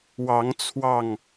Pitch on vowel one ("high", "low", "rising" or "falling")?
rising